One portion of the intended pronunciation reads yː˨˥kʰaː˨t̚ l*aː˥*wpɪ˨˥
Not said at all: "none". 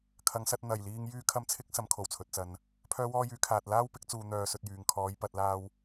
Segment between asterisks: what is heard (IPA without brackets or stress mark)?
aː˥